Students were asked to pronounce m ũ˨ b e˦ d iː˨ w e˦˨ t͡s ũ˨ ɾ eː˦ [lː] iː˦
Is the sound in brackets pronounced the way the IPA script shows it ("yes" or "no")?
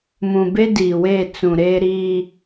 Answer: no